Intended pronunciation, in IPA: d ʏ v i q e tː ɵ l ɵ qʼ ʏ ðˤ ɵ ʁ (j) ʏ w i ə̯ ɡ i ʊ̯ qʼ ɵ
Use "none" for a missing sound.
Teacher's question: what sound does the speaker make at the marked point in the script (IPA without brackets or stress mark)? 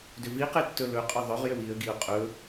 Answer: j